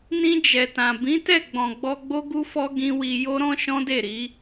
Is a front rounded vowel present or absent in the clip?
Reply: absent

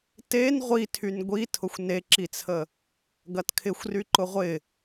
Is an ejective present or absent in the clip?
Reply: absent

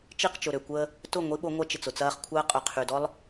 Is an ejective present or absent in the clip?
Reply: present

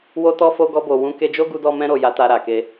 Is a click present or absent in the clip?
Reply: absent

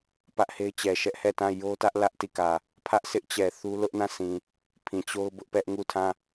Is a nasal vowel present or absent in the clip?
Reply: present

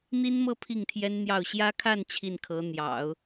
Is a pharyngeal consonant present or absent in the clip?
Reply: absent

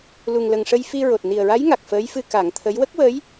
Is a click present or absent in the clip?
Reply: absent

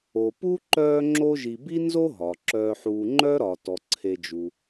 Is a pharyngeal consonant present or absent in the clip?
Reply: present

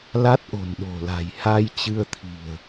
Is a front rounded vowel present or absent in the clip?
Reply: absent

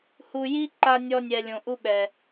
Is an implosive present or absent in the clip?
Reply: present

